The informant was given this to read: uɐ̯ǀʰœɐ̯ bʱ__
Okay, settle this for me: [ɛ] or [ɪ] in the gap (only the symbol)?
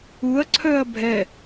ɛ